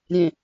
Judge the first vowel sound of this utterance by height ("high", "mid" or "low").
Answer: mid